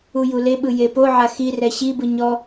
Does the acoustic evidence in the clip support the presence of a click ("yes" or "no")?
no